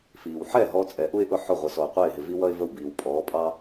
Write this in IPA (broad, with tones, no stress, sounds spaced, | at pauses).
f iː˩ w ħ ɛ˥˩ ɦ ɔ˧ t͡sʼ ɛ˩˥ ʔ u˥ ɪ̯ ʔ ʊ˥˩ ħ ʊ˥˩ ʁʷ ə˩˥ s ɔ˩ ʊ̯ qʷ ɛ˥˩ ɪ̯ ɦ ɪ˩ v i˥ w ʌ˥ ɪ̯ v ə˥˩ w b iː˩ w pʼ ɔː˩˥ pʼ ɑ˥